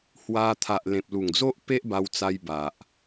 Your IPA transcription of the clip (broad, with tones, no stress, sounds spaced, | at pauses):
h w a˧ t̪ʰ a˨ ʔ l ẽ˨ p̚ l u˨˩ ŋ d͡z o˦ ʔ p e˦ ʔ b a˧ w t͡s a˧ j b a˨ ʔ